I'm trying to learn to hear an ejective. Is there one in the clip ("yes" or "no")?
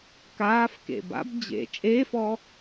yes